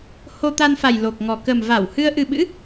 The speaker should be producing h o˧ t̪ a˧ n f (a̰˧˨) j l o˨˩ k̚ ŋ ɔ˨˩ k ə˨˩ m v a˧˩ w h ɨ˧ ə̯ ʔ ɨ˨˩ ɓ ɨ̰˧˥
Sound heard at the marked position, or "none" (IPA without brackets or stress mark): a˨˩